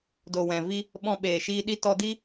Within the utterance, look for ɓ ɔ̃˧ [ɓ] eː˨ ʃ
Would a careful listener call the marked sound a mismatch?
no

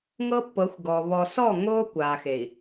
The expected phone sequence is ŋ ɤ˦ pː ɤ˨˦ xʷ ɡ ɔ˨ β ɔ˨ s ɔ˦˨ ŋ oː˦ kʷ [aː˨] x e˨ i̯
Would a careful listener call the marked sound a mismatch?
no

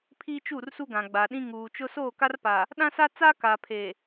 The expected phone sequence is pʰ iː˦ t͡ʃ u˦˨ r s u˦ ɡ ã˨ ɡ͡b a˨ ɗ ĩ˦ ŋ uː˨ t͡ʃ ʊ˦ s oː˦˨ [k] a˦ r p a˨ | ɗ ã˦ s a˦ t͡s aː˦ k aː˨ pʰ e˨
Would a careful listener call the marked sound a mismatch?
no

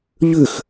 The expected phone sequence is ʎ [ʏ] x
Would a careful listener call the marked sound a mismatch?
no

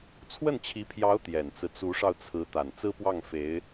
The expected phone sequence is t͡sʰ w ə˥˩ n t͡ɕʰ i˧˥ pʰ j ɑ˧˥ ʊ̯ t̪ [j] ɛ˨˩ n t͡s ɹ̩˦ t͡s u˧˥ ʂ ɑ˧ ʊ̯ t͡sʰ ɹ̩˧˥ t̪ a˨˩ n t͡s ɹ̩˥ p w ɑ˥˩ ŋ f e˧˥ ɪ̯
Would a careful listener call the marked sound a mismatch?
no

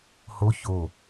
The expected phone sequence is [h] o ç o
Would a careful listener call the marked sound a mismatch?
no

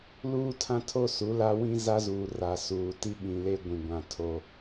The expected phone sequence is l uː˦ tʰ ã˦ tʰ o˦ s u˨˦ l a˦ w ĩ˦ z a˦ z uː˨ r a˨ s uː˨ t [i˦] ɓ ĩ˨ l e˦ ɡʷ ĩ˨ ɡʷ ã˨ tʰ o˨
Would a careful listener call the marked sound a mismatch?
no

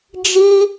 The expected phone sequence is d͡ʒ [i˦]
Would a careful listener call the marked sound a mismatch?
no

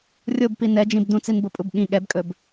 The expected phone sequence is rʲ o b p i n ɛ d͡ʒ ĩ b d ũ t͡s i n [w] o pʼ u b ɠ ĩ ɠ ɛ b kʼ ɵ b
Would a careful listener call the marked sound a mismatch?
yes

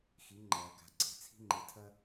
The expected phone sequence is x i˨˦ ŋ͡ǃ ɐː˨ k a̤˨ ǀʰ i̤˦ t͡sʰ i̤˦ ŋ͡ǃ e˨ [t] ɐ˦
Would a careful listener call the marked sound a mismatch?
yes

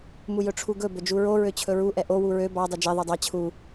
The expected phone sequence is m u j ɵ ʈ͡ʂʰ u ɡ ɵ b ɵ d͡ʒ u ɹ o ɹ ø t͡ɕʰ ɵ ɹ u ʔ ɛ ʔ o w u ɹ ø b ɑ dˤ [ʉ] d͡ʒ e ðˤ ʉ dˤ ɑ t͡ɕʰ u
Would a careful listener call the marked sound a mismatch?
yes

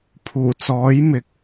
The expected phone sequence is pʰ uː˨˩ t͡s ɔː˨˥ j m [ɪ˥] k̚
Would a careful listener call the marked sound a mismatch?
yes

